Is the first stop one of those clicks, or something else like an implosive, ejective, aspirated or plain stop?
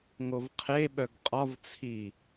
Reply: aspirated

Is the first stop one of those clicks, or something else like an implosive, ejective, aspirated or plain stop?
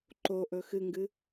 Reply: click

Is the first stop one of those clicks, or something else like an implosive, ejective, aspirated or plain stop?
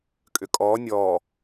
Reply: ejective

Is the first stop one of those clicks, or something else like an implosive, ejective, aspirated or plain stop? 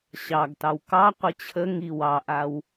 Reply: plain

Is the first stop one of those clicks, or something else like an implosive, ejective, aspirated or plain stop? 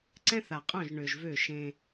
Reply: click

